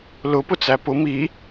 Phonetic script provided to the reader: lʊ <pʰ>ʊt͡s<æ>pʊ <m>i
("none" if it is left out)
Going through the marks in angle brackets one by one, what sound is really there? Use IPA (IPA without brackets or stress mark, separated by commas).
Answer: p, æ, m